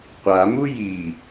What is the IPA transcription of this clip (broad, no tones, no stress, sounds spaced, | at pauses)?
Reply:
qʷ a m u j i